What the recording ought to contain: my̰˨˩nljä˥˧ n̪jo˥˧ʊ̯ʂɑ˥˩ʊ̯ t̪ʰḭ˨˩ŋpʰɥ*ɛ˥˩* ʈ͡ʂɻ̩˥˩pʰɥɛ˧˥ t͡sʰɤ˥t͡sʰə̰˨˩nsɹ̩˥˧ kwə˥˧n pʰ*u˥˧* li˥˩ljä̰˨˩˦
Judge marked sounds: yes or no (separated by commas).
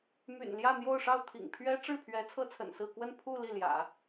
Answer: no, yes